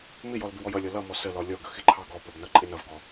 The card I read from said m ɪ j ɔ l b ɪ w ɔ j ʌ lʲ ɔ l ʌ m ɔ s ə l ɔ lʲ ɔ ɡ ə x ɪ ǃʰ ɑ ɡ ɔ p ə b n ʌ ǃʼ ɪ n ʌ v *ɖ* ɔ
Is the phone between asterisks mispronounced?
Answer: yes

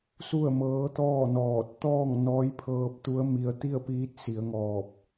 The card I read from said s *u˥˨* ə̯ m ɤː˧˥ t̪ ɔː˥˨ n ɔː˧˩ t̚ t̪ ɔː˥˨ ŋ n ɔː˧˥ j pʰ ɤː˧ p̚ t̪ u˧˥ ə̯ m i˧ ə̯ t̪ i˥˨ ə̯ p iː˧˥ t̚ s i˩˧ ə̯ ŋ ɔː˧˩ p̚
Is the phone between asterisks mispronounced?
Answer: no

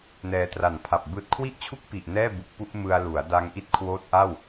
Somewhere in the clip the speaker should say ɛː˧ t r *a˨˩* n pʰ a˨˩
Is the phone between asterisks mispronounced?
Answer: no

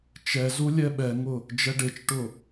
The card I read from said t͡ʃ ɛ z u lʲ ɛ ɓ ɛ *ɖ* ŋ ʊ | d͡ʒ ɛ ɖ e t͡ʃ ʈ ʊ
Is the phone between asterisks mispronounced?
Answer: yes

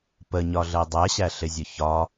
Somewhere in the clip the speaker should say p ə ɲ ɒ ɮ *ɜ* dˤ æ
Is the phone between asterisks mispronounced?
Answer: no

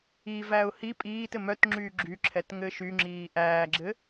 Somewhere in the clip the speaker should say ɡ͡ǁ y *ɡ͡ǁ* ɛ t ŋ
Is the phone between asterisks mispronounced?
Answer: yes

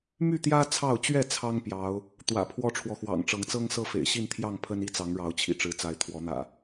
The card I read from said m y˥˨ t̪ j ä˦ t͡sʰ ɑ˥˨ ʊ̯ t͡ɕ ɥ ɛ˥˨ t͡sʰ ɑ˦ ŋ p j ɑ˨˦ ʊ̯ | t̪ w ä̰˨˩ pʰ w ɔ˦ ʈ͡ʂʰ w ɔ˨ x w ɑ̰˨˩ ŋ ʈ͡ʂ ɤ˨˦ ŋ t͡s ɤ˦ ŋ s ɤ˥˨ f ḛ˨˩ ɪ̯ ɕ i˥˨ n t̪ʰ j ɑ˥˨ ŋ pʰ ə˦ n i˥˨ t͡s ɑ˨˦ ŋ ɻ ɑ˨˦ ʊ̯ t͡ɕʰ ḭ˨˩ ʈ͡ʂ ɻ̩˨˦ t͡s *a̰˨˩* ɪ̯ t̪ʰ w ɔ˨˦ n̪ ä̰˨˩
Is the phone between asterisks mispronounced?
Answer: yes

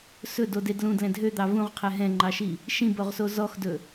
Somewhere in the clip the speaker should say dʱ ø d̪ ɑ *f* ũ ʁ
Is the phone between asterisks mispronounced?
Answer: yes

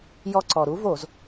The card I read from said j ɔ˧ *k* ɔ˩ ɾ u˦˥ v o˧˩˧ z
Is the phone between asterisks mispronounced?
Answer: yes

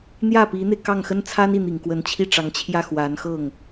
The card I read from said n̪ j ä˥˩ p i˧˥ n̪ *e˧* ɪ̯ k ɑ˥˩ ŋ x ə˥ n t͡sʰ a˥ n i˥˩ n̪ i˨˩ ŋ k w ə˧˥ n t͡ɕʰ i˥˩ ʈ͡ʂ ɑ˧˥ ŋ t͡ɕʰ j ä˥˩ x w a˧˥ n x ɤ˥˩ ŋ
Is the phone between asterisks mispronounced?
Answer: no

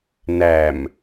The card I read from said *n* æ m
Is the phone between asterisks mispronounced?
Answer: no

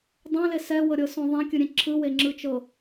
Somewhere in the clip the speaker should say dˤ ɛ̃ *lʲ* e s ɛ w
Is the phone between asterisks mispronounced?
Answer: yes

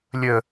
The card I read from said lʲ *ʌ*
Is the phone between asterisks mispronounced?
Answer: yes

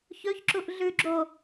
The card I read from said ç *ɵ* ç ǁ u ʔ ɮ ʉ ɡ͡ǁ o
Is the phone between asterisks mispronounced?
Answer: no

